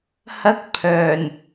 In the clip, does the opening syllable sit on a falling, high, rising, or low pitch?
high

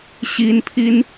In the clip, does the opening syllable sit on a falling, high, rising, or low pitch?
high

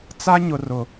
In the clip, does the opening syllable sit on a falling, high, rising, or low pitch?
high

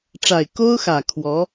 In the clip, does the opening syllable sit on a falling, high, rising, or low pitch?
low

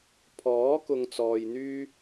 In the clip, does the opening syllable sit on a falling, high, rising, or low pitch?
rising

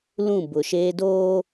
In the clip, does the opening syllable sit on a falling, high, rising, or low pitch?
falling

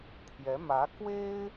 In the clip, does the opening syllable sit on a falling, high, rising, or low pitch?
rising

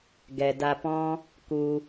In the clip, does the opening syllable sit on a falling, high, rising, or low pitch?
low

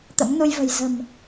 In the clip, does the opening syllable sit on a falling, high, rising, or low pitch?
rising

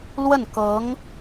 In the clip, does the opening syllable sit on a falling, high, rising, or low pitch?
falling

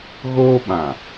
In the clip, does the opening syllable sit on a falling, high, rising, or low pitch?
high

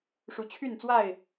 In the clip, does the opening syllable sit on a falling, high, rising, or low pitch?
rising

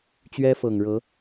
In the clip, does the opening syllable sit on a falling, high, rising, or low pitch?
high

